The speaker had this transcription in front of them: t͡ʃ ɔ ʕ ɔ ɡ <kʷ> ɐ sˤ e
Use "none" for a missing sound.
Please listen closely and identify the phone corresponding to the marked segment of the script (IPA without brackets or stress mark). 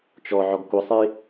kʷ